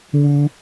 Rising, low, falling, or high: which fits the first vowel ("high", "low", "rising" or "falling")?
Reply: high